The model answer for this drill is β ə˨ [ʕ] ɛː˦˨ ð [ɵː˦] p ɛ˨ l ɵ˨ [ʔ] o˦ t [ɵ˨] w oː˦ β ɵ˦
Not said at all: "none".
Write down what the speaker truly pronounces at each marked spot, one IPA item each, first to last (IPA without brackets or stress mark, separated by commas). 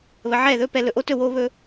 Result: ʕ, ɵː˦, ʔ, ɵ˦˨